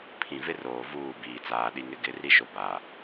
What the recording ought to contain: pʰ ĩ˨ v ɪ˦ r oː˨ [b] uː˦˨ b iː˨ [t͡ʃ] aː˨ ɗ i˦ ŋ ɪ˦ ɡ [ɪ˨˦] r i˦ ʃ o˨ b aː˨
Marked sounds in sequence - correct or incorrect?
incorrect, incorrect, correct

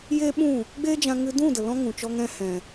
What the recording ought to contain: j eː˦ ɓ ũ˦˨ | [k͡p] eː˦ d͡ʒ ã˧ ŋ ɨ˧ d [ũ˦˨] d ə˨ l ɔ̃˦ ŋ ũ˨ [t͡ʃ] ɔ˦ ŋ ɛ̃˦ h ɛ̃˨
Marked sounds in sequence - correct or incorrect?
incorrect, correct, correct

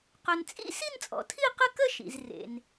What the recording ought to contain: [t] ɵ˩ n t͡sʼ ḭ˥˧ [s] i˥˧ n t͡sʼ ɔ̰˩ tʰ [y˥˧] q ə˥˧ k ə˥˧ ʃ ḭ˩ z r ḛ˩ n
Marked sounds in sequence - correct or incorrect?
incorrect, correct, incorrect

